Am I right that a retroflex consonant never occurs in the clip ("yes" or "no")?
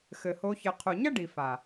no